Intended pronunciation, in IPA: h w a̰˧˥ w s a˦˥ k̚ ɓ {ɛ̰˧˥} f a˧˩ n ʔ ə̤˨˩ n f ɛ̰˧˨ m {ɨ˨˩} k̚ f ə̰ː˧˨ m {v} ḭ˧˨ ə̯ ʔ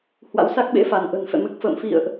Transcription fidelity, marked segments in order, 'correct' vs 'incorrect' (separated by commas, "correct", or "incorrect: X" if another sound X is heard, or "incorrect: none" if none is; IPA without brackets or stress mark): incorrect: ḛ˧˥, correct, incorrect: f